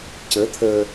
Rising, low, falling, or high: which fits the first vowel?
rising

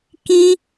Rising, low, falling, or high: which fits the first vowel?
high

